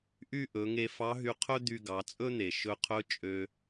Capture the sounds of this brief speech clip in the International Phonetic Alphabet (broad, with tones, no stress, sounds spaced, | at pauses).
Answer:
ʔ y˥ ʔ ɵ˩˧ ŋ e˧ f ɑ˧˥ ɦ y˧ qʰ ɵ˥ d̪ y˧ ɡ ɑ˩˧ t͡sʼ ɵ˥ n̪ e˩ ʃ ɵ˧ qʰ ɵ˧˥ t͡ʃʼ ø˧